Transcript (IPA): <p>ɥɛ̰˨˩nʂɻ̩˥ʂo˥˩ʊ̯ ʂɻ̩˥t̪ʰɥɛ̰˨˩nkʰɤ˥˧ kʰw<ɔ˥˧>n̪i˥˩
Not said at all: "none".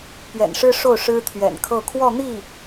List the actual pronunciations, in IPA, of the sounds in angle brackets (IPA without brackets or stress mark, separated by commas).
p, ɔ˥˧